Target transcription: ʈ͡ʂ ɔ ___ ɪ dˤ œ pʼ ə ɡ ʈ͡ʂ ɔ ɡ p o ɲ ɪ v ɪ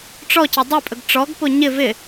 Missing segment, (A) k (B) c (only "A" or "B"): B